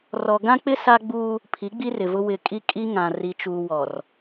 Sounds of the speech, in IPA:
r ɔ˨ ɡ ã˦ k͡p ɪ˦ s a˦ ɡ͡b uː˦ | pʰ i˨˦ ɡ͡b i˦ r ɪ˨ v ʊ˦ w ɪ˨ kʼ i˦ kʼ i˦ ŋ ã˨ r i˨ t͡ʃ uː˨ w ɔ˨ r

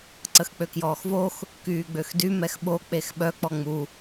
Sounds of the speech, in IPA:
ǀ ə x k͡p ø k j ɔː x v o x | k yː ɡ͡b ø x d y m ɛ x ɓ o k͡p e x ɓ œ k͡p ɔ ŋ͡m u

